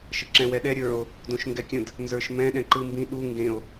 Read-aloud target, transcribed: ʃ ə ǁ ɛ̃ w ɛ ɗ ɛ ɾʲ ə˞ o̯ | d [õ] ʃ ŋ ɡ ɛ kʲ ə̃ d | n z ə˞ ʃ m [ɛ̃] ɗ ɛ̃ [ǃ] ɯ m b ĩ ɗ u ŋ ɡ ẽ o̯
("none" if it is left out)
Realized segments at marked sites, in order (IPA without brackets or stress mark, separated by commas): õ, ɛ̃, ǃ